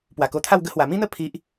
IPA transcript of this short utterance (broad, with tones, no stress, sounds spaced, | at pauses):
p w a˨˩ k o˧ t̪ʰ a˥˧ w ɡ ə˧ h w a˨˩ m ĩ˦ n̪ ə˥˧ pʰ i˦ ʔ